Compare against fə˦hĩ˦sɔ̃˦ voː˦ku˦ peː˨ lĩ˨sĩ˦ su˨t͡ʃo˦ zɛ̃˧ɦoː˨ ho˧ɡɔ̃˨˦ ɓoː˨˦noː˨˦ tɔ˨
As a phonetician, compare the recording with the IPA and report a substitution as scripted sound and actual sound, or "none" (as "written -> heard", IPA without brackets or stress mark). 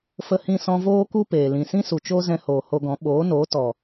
ɦ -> h